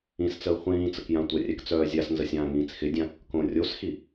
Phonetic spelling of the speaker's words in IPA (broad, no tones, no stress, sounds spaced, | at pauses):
ĩ s t͡s əː χʷ ĩː t͡s ə k j ã tʷ ə rʲ ɛ k t͡s œː zʲ a s n z ə sʲ ãː ŋ ĩː t͡s x ɪ dʲ ã | k õ rʲ o s x i